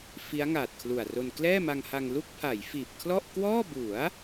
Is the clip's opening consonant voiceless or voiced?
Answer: voiceless